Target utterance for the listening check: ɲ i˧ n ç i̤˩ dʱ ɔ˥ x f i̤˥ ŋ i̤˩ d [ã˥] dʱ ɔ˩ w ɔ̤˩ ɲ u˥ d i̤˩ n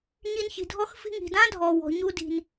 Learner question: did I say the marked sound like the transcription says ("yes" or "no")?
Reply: yes